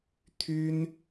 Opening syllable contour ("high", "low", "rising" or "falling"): high